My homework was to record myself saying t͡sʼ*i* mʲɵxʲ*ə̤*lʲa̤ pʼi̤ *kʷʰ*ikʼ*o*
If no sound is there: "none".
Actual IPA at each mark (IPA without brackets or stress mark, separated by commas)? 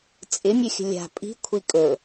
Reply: ɪ, ə̤, kʷʰ, ɵ